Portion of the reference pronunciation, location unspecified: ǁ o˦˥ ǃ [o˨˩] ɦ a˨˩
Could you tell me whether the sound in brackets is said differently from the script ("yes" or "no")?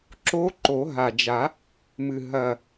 yes